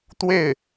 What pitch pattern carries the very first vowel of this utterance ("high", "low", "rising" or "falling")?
falling